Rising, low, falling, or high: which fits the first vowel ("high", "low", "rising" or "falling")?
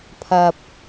low